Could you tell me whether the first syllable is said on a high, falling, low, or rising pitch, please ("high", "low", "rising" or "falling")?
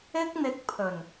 high